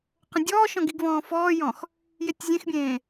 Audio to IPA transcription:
q ə̃ dʲ ɔː ʃ ɔ̃ ɡ i ɡ v ɔ̃ː f ɔː j ɔ̃ x | j e tʲ zʲ ẽ x bʲ ẽː

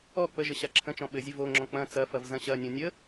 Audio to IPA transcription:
ɔ k͡p ə ʒ ə ɕ a ǁʰ ə̃ t͡ʃ ɔ̃ ɓ ɘ zʲ ɘ v o ŋ͡ǁ ɔ̃ k͡p ɐ̃ t͡s ɐ f ɐ v z ɐ̃ ɕ ɐ nʲ õ nʲ ə

